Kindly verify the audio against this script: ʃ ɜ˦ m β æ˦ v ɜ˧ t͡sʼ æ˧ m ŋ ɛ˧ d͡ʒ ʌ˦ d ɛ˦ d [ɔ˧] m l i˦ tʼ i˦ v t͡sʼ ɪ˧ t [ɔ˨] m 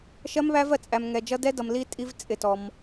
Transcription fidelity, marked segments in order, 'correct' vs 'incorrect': incorrect, incorrect

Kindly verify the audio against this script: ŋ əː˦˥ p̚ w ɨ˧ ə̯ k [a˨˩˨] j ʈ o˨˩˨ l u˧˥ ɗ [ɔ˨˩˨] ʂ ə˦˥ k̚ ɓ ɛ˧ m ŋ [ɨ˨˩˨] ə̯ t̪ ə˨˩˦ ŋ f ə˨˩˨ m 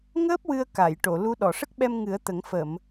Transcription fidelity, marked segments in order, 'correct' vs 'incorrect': correct, correct, incorrect

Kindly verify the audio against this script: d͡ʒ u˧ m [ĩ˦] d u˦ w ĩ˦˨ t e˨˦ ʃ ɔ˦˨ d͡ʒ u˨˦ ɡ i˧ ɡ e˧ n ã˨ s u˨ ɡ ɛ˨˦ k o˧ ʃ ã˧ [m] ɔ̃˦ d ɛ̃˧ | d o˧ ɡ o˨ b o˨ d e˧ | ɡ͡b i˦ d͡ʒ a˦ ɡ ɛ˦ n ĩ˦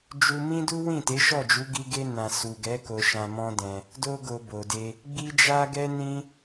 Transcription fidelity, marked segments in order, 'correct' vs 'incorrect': correct, correct

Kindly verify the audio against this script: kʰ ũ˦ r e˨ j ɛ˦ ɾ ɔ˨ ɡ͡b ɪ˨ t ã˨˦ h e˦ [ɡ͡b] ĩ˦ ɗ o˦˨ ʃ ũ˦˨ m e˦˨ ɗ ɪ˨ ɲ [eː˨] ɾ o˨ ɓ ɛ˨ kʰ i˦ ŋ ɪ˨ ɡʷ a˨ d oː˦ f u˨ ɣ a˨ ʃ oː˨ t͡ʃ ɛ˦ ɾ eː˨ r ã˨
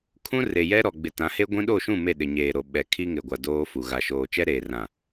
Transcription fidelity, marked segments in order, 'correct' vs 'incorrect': incorrect, correct

